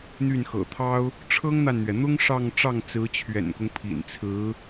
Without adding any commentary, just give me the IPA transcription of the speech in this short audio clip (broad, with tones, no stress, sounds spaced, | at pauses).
n̪ y˥˩ n x ɤ̰˨˩ t̪ʰ ɑ˥ ʊ̯ | ʈ͡ʂʰ ɤ˥ ŋ n̪ a˨ n n̪ ɥ ɛ˩ n̪ ʊ˥ ŋ ʂ ɑ˥˧ ŋ ʈ͡ʂ ɑ˥˩ ŋ t͡s ɹ̩˧˥ t͡ɕʰ ɥ ɛ̰˨˩ n k ʊ˦ ŋ pʰ ḭ˨˩ n t͡sʰ ɹ̩˧˥